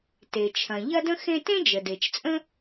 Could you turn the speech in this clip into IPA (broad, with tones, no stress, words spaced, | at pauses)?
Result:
te˩t͡ʃʰɐ̃˩ ʎɐ˥də̃˥ xẽ˥ tẽ˥d͡ʒə˩de˩t͡ʃt͡sʼə̃˥